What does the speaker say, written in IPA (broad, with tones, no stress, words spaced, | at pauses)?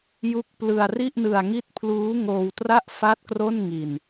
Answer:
ju˦˥k̚plɯ˧a̯ ri˥˩ʔnɯ˧a̯ ŋi˦˥t̚pʰluː˦˥ ŋoː˧wtra˥˩ʔ fa˥˩t̚ kro˥˩nŋi˧n